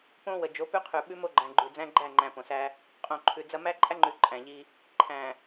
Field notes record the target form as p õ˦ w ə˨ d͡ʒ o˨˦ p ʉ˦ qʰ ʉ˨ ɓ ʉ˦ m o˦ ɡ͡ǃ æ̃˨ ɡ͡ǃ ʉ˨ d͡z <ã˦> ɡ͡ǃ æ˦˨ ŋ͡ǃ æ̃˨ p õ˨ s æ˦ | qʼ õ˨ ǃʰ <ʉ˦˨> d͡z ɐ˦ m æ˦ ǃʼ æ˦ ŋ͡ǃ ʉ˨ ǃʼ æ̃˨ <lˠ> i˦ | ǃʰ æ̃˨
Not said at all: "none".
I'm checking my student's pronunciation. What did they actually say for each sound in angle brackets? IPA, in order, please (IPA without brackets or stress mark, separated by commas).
æ̃˦, ʉ˨, ʎ